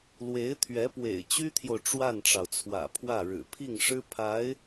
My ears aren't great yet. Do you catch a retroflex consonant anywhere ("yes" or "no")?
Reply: yes